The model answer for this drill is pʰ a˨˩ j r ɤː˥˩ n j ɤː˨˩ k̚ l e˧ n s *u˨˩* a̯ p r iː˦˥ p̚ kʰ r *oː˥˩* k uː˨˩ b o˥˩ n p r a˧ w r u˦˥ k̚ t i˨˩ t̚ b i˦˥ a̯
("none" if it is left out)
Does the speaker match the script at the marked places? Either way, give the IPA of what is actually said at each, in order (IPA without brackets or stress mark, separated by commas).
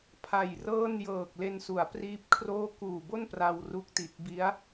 u˩˦, oː˥˩